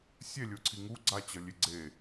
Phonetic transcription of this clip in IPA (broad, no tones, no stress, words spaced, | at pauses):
sʲɛlʲoǀʰi ŋu ɡ͡ǀat͡ɕʌ lʲeɡ͡ǀe